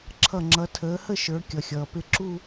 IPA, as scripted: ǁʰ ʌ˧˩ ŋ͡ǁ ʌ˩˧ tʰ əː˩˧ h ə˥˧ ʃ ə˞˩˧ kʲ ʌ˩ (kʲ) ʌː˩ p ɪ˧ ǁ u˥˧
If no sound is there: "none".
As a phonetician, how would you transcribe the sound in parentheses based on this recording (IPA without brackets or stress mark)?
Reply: xʲ